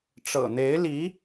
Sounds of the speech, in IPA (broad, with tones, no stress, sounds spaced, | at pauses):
ʈ͡ʂ ɤ̰˨˩ n̪ e˧˥ ɪ̯ l i˧˥